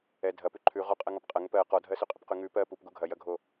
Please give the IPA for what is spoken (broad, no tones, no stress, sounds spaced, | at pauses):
ɛ dʱ ɐ p ʉ ǃʰ ʉ ʁ ɔ qʼ ɜ ŋ ɔ p qʼ ɐ ŋ ə p ɜ q ɔ dʱ ɜ s ʉ qʼ ə p q ʉ ŋ ʉ p ɜ p u p ɡ u ɡʱ ɐ j ɐ ɡʱ o